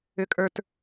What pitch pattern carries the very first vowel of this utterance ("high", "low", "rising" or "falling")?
low